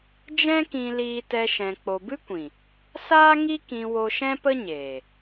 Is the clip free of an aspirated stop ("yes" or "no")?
yes